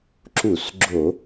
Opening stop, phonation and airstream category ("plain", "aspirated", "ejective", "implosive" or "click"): click